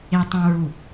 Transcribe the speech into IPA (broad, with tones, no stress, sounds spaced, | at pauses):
e˧ tˤ ũ˧ ɹ u˧˩